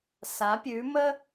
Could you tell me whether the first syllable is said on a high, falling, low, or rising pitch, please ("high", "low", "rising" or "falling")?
rising